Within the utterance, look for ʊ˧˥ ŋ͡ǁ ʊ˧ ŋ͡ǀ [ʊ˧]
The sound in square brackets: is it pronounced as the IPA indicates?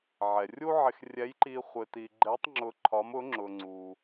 no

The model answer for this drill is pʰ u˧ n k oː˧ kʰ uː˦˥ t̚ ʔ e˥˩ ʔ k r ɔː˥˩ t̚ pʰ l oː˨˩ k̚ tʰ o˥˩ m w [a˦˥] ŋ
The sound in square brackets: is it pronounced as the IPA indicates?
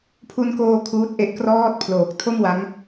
yes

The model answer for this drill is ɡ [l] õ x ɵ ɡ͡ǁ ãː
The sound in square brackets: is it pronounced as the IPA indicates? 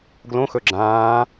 yes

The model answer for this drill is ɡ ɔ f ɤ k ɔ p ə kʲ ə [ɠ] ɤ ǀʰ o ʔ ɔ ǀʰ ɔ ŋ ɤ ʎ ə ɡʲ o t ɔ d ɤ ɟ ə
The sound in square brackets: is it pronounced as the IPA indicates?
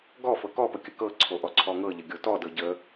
no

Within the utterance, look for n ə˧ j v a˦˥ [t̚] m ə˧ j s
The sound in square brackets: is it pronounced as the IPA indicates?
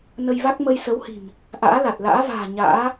no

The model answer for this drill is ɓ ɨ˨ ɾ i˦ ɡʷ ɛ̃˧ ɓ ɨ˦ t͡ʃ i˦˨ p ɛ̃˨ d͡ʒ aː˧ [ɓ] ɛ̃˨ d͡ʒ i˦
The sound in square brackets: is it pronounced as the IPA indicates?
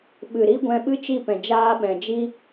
yes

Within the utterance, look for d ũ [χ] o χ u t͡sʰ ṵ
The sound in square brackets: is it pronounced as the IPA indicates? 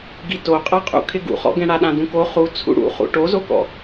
no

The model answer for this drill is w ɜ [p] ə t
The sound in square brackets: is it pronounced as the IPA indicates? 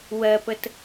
yes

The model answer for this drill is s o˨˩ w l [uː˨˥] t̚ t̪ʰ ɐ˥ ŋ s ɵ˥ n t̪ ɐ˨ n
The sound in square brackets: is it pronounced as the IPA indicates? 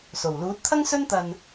yes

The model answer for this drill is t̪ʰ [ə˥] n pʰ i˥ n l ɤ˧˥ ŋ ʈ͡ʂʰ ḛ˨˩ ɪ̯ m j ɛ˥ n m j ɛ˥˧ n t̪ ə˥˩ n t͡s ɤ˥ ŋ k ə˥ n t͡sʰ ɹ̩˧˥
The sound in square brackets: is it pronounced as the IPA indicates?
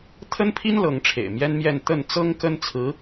yes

